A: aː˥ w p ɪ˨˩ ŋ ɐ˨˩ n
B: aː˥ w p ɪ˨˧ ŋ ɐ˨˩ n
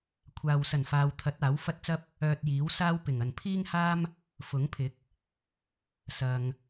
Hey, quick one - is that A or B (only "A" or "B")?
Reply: A